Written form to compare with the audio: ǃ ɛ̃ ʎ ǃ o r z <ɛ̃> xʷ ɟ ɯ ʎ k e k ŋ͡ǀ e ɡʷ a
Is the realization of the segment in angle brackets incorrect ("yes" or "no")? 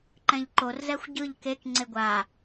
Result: yes